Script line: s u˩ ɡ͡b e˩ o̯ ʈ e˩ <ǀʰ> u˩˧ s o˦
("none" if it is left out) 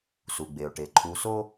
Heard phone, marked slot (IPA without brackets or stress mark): ǃʰ